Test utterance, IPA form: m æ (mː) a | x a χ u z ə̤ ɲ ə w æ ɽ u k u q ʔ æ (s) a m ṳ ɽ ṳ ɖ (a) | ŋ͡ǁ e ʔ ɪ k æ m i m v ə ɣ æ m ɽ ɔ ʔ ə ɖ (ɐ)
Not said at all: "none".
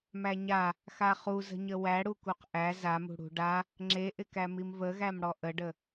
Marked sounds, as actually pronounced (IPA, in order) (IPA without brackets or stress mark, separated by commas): ɲ, z, a, ə